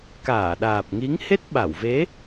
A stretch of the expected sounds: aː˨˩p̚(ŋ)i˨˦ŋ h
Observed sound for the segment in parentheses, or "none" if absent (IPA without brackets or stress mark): ŋ